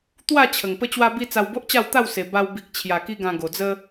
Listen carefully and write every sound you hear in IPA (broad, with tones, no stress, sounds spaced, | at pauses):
t̪ w a˥˧ t͡ɕʰ ə˨˩ ŋ p ə˦ t͡ɕ w a˦ b i˦ t͡s a˧ w b o˦ ʔ t͡ɕ a˥˧ w t̪ a˥˧ w s e˨˩ b a˧ w b i˨ k̚ t͡ɕʰ j a˨˩ k i˧ ɡ ã˧ ɡ o˨˩ d͡z ə˦